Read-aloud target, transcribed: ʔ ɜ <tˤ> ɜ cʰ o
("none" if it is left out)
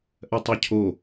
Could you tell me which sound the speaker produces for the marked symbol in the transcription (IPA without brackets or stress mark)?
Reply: tˤ